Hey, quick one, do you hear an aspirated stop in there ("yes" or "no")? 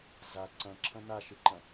yes